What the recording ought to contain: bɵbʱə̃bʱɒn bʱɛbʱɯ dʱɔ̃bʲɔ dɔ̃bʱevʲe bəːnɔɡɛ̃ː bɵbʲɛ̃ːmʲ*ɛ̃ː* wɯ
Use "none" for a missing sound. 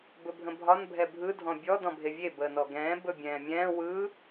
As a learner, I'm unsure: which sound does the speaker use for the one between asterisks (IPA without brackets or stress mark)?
ɛ̃ː